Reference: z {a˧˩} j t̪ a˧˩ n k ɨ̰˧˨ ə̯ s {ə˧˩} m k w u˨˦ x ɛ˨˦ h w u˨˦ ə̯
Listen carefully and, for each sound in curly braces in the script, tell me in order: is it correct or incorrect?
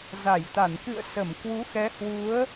correct, correct

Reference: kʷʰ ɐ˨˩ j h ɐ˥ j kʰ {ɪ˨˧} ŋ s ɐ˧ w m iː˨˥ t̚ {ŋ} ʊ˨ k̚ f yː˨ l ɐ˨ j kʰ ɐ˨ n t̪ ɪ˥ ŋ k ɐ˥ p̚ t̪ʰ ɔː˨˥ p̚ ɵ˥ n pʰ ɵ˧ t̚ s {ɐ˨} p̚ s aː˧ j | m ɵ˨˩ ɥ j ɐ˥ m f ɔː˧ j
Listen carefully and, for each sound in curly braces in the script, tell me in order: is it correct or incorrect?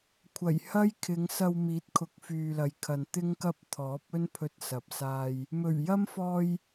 correct, incorrect, correct

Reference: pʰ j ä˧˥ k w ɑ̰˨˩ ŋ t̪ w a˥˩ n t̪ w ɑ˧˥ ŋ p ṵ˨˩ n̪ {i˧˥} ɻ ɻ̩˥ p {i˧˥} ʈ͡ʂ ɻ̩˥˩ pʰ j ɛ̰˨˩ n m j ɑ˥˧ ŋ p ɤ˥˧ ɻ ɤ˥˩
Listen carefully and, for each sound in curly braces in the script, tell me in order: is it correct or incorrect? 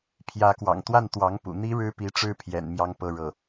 incorrect, correct

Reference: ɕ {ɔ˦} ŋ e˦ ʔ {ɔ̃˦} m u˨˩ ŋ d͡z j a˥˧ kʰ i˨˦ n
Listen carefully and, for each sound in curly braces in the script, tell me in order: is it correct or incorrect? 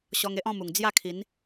incorrect, incorrect

